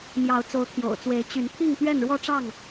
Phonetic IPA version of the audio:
mjɑ˨˦ʊ̯ t͡so˨˦ʊ̯t̪ʰjo̰˨˩ʊ̯t͡swe˨˦ɪ̯ t͡ɕy˨˦n t̪ʰi˥˨ŋt̪ɥɛ˥˨nɻwɔ˦ʈ͡ʂɑ˥˨ŋ

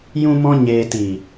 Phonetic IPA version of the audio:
jũ˧mɔ̃˧ ɲeː˨tiː˨

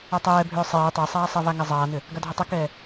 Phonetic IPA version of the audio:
atˤɛːbʱʏː sˤeː tˤesˤaːsˤɛva ŋɛzˤaːnʏ | ɡadʱʏtˤɛkɛː

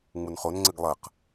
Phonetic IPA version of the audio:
ŋ͡munχonŋ͡ǀɘɡ lˠɐq

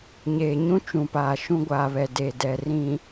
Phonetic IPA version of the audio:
ɲeː˨ɲũ˦ t͡ʃũ˨paː˨ʃũ˦ ɡʷaː˨βɛ˨ de˨dɛ˨ rĩ˨

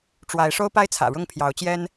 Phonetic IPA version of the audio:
ʈ͡ʂwa˨˦ɪ̯ ʂo˦ʊ̯pa˦ɪ̯ t͡sʰä̰˨˩ɻʊ˥˨ŋpʰjɑ˨˦ʊ̯ t͡ɕjɛ˦n

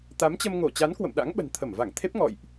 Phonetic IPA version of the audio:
t̪a˨˦mt͡ɕə˧m ŋo˧˩t͡ɕa˨˦n kwə̰˧˨mɗa̰˧˥ŋ ɓə̤˨˩n t̪ʰə˧˩mva˧˩ŋt̪ʰe˦˥p̚ ŋɔ̰˧˨jʔ

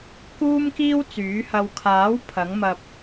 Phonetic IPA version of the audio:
kuː˥mkiː˥wt͡syː˨˥hɐ˧w kʰaː˨˥w pʰɐ˨˥ŋmɐ˧p̚

